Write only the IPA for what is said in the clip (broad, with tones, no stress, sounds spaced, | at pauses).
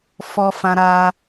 f ɔ˧ f ã˧ ɾ a˧